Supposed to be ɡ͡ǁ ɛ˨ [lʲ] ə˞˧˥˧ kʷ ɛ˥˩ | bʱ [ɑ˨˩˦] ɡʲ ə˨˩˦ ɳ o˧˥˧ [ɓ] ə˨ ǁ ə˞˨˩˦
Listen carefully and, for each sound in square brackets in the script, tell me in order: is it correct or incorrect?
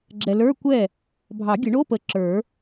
incorrect: l, correct, incorrect: p

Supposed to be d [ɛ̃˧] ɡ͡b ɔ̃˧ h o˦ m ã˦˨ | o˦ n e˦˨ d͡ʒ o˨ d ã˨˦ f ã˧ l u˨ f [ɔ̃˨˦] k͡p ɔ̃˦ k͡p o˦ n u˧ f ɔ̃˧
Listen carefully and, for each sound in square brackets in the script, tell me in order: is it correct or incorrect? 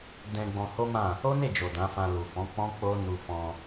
correct, correct

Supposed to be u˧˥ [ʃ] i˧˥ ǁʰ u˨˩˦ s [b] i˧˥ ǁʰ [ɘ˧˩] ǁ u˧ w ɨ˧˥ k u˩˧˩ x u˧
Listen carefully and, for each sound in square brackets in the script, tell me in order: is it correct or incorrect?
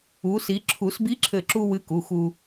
incorrect: s, correct, correct

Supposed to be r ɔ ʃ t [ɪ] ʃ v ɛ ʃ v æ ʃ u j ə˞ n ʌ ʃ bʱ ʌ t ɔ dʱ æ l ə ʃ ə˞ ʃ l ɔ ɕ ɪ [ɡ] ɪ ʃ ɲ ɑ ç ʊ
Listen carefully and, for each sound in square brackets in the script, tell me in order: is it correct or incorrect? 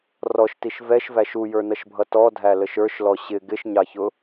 incorrect: i, correct

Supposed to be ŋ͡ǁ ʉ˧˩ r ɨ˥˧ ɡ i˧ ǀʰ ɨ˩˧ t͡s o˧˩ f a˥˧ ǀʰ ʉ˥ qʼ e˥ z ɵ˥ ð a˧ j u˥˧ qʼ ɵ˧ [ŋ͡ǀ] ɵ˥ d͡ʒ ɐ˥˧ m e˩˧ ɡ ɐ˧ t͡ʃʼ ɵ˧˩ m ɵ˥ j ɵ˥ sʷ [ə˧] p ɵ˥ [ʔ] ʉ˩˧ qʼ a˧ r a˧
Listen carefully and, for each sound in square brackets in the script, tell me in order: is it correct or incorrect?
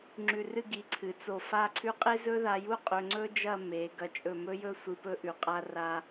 correct, incorrect: ɨ˧, correct

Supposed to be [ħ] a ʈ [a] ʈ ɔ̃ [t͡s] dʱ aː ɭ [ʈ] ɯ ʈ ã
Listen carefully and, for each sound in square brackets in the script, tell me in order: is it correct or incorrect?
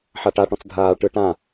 correct, correct, correct, correct

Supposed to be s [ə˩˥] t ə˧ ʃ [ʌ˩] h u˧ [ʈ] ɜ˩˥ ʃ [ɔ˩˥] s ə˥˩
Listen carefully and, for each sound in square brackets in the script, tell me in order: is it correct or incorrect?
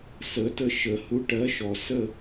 correct, incorrect: ə˩, correct, incorrect: ɔ˩

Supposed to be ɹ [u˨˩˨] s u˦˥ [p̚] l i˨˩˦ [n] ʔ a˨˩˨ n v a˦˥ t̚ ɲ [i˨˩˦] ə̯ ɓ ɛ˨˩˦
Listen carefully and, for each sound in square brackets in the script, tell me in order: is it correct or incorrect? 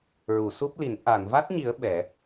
correct, correct, correct, correct

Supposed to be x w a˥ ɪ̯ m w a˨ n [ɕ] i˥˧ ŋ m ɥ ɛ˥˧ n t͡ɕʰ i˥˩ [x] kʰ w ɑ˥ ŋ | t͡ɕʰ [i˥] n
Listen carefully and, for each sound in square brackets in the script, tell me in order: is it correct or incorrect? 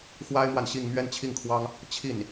correct, incorrect: ŋ, incorrect: i˥˩

